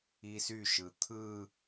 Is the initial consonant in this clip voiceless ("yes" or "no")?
yes